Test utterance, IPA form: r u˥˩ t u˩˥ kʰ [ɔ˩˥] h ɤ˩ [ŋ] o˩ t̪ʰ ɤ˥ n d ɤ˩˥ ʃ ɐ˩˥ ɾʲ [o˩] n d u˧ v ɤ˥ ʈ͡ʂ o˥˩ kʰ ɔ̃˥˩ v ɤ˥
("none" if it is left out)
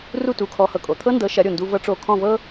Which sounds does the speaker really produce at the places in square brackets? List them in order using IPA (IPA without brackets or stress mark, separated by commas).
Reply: ɔ˩˥, kʼ, o˩